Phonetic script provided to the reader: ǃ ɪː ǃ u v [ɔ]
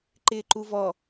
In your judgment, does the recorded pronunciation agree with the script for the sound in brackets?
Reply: yes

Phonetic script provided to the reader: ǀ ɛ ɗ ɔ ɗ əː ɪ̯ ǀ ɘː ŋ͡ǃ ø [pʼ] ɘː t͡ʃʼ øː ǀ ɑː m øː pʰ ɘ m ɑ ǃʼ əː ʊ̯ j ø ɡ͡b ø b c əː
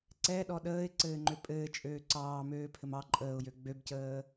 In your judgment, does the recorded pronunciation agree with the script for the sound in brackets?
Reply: yes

